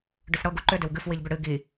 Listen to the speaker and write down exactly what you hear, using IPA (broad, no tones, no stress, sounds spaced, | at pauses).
ɖ ʏ f ɽ ɤ ɡ u ǃ ʏ d ɪ w ɡ ɨ f w i ʎ b ʏ ɽ ɨ ɡ i